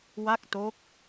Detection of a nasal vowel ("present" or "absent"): absent